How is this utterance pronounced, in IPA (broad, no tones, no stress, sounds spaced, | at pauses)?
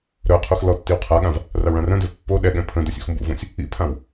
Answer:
ɾ œ qʰ u x l ɔ tː i w qʰ a ɠ ã v | r a w ɭ ã r œ̃ d ø v pː o ɗ ɛ ɠ ɛ̃ pʰ ə̃ d œ sʲ ṵ x m b ṵ v õ sʲ | ḭ pʰ ã w